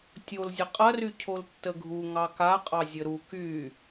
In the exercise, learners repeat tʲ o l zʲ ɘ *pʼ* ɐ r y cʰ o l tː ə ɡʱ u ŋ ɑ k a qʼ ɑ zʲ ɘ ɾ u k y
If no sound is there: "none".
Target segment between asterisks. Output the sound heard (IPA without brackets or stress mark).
qʼ